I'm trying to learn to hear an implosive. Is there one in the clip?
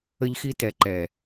no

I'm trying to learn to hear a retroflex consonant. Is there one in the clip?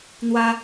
no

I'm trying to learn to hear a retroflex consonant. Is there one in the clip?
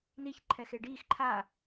yes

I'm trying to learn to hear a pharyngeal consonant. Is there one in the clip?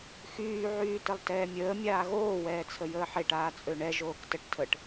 yes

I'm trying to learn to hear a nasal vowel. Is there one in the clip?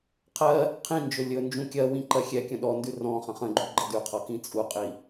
yes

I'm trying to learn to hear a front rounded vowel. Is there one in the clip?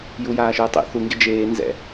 no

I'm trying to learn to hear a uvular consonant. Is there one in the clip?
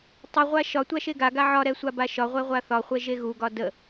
yes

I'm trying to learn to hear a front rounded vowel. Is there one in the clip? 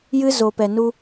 no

